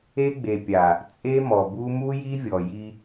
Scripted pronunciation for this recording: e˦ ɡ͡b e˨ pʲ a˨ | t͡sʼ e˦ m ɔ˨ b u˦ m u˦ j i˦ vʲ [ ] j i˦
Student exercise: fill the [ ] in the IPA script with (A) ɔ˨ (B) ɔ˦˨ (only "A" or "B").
A